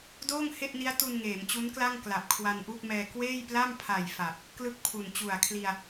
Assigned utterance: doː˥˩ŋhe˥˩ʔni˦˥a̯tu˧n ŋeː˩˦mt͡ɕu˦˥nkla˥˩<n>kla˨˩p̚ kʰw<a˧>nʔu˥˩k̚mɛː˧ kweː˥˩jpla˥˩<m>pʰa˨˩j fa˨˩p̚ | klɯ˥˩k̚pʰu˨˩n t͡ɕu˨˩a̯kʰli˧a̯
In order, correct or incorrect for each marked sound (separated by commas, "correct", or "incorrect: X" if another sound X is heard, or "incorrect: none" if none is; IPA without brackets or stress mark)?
incorrect: ŋ, correct, correct